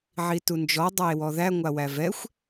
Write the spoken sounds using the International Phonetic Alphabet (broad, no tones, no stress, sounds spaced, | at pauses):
ʕ i t u n d͡ʒ ɔ dˤ a e̯ w ɔ ð æ ŋʷ a w æ v ɛ xʷ